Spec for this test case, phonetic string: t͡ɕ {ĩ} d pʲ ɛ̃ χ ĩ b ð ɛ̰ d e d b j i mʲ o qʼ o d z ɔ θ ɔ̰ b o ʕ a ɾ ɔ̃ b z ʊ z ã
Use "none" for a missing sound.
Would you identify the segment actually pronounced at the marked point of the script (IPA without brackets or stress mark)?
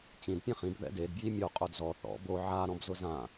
ĩ